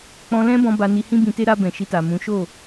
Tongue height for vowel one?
mid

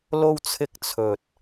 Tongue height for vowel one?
mid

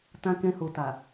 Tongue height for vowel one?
low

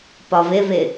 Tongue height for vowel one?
low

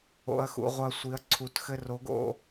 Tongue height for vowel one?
mid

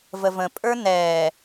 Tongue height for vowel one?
mid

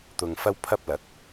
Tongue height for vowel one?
high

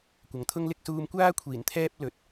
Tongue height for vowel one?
low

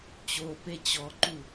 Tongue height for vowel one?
mid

